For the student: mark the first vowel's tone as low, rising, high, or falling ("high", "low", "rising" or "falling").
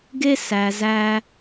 high